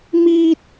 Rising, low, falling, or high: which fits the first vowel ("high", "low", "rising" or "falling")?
high